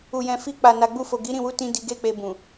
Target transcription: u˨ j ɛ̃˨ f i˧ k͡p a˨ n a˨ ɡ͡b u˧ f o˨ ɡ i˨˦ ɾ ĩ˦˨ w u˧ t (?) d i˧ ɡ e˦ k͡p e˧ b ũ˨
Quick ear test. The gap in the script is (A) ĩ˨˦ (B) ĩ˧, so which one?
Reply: B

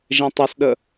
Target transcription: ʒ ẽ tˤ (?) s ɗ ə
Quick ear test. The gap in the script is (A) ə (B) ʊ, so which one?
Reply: B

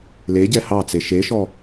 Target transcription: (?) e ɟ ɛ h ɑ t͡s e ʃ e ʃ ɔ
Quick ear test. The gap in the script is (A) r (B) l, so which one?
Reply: B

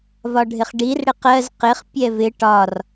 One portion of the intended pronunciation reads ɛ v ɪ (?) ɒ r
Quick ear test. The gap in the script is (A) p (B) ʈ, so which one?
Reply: B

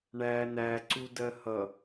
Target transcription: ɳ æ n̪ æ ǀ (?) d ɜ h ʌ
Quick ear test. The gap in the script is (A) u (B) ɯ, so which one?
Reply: A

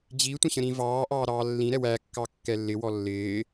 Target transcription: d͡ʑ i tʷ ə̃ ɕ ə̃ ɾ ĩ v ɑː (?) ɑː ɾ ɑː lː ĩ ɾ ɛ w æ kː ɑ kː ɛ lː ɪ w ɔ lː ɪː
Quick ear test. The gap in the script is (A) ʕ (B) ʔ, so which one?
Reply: B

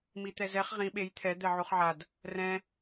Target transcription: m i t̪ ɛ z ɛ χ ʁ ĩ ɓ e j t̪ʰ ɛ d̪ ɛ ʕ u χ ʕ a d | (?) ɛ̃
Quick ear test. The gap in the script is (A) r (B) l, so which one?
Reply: A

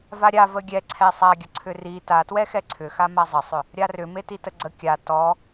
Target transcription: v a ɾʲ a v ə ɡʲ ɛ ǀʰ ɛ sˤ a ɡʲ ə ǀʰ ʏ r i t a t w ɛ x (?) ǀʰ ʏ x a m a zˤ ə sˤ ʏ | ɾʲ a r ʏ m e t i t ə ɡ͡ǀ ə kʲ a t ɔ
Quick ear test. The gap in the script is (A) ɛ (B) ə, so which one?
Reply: A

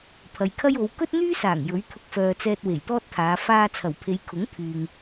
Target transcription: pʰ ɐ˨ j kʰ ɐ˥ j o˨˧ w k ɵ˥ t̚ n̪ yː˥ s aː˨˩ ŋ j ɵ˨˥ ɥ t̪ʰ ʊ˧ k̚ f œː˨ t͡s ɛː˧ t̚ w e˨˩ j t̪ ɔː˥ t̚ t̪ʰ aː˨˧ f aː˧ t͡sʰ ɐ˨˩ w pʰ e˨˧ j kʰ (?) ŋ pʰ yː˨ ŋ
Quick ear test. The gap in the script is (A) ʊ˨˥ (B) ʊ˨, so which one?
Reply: A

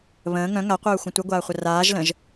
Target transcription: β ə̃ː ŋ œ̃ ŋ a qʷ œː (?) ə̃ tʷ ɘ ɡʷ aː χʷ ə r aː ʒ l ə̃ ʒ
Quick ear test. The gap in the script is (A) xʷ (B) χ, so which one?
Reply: A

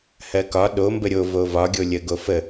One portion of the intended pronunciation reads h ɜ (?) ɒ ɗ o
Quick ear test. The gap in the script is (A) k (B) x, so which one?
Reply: A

